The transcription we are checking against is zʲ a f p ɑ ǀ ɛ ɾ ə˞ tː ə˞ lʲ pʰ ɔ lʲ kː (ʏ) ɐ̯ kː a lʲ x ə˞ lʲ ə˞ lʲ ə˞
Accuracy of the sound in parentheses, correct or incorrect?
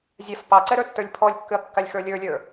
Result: correct